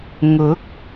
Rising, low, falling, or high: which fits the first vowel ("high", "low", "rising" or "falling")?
rising